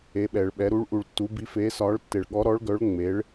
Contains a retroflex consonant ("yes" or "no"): yes